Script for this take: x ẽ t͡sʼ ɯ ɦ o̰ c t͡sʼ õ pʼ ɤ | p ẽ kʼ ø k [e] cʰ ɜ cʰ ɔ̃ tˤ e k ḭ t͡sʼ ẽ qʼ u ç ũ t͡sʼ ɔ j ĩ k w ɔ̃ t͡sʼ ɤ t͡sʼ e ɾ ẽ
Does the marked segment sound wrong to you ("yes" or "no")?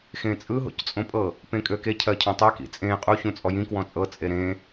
no